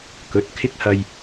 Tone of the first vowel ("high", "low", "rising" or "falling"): rising